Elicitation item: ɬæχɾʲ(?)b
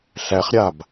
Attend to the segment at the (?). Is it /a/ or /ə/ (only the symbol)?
a